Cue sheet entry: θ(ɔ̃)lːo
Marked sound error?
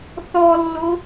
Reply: yes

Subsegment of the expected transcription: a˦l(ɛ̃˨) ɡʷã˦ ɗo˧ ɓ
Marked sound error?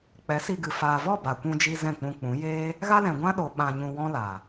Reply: no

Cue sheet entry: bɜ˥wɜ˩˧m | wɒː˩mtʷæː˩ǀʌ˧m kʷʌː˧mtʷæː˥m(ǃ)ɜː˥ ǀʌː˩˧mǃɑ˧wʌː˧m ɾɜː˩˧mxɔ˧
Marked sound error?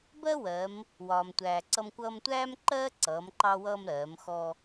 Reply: no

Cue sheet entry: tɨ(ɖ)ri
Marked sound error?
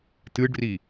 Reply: no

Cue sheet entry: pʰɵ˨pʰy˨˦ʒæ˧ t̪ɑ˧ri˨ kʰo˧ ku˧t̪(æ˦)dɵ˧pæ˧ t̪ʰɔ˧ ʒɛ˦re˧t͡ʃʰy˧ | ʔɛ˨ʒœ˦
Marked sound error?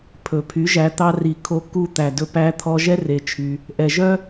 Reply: yes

